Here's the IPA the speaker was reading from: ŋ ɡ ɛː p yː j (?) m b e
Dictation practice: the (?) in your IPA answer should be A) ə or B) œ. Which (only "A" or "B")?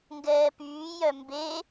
B